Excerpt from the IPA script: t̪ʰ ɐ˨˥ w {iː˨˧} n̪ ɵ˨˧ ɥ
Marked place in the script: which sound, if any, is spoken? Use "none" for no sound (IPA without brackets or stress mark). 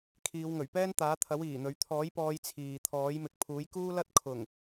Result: iː˨˩